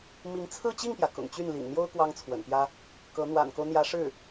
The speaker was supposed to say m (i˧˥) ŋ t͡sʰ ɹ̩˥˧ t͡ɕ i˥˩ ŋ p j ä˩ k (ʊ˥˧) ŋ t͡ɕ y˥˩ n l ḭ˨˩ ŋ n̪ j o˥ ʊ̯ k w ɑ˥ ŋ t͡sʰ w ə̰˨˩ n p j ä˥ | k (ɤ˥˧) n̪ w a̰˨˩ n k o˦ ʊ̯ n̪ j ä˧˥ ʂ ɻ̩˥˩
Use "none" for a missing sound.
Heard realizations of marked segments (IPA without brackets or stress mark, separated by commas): i˧˥, ʊ̰˨˩, ɤ˧˥